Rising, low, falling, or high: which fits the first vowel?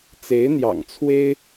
rising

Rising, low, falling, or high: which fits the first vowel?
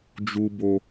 low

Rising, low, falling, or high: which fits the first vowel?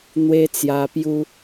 high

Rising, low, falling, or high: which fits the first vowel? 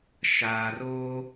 low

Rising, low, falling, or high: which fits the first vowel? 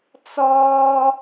high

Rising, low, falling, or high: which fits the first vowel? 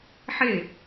falling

